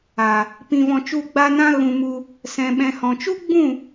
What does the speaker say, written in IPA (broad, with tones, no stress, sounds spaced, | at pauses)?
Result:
a˨ | p ĩ˧ v ɔ̃˧ t͡ʃ u˦˨ ɡ͡b a˦ n ã˦ ɣ ũ˧ m u˧ | s ɛ̃˧ ɓ ɛ̃˧ h ɔ̃˨ t͡ʃ u˦ ɡ͡b ũ˦˨